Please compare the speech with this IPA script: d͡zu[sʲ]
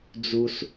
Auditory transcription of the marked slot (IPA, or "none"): s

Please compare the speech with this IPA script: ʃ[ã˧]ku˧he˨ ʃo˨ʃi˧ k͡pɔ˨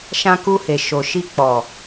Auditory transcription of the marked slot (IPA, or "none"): ã˧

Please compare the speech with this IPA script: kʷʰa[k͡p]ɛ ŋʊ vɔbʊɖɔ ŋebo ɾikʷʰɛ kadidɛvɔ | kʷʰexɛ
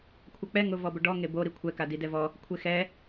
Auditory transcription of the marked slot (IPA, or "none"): k͡p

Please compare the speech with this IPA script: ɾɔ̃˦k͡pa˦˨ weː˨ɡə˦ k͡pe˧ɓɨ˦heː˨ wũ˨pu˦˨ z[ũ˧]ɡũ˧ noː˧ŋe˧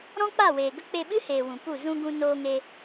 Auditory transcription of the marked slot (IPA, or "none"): ũ˧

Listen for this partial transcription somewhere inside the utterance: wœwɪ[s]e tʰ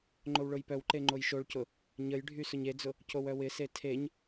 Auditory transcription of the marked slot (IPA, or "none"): s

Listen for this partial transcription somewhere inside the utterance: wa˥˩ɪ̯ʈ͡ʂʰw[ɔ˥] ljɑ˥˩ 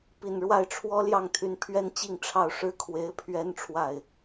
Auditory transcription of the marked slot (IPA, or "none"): ɔ˥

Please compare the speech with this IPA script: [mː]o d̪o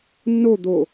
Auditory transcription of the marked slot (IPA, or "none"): nː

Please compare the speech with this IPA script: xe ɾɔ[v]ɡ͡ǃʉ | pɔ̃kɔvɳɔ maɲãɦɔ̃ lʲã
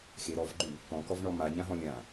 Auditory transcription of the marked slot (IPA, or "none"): v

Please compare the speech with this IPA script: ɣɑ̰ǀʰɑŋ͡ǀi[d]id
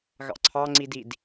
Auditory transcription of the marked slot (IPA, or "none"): d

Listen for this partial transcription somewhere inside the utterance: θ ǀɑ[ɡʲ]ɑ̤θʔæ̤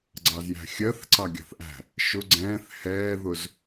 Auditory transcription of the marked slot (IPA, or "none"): ɡʲ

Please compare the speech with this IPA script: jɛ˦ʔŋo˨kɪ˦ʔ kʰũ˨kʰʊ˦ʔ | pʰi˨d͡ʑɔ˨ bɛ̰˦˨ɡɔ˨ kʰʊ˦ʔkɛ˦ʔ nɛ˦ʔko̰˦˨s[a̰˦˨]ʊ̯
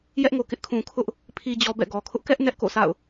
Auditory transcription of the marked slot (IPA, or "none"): a̰˦˨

